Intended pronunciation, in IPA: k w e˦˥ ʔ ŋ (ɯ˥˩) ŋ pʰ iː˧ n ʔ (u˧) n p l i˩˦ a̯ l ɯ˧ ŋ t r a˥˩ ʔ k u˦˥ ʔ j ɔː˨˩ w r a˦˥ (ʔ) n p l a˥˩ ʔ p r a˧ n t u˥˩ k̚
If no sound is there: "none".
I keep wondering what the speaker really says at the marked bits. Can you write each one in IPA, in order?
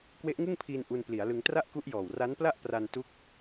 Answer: ɯ˥˩, u˧, none

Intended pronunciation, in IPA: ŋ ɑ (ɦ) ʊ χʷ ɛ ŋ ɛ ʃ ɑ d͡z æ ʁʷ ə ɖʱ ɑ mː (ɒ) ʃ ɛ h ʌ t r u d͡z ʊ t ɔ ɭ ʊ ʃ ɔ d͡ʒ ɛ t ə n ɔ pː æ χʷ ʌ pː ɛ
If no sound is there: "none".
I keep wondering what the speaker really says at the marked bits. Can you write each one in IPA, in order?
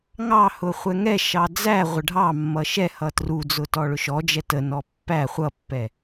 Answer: h, ʌ

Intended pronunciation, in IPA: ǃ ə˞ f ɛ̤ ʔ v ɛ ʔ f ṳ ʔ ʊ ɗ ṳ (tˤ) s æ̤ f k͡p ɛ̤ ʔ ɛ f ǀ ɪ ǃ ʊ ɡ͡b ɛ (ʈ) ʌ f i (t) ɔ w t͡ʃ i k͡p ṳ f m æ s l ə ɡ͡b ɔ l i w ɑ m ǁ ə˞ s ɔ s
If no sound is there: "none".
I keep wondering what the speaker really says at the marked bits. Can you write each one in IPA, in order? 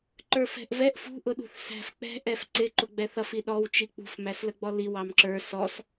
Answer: θ, θ, ɗ

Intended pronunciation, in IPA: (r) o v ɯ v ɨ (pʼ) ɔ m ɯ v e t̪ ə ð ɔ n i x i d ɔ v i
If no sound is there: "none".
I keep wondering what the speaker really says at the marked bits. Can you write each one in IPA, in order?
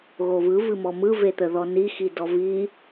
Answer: ɣ, m

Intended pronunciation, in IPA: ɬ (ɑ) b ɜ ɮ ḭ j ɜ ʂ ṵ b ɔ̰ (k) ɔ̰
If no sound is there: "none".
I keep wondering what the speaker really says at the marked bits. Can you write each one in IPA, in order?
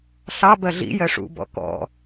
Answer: ɑ, k

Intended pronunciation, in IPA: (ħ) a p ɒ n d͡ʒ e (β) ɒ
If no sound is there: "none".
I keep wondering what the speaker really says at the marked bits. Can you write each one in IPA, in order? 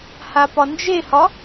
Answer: h, h

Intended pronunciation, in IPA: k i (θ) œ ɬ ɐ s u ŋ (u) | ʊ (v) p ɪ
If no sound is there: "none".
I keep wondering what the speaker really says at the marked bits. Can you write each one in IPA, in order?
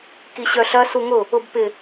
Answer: ɕ, ʊ, b

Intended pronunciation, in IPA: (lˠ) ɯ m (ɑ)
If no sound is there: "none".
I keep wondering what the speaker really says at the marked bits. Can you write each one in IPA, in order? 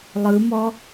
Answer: lˠ, ɔ

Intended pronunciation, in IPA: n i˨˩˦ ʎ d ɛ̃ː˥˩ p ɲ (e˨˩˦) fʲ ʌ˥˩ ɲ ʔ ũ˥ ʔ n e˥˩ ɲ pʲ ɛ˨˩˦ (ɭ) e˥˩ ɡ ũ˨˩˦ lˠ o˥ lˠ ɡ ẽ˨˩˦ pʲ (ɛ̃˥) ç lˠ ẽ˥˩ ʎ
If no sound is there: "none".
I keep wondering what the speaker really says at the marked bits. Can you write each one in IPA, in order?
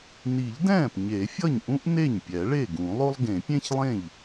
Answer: e˨˩˦, ɭ, ẽ˥

